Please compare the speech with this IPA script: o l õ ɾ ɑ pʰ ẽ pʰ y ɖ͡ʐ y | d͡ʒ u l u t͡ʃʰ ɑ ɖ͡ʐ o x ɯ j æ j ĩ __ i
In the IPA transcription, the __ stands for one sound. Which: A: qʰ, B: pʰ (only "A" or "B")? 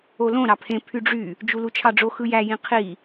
A